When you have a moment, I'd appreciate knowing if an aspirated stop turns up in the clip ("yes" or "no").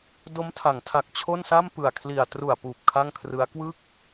yes